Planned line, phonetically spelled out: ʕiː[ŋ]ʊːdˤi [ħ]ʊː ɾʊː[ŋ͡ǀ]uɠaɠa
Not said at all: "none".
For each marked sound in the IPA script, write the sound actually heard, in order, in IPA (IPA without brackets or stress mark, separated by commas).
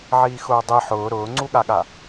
x, ħ, ŋ͡ǀ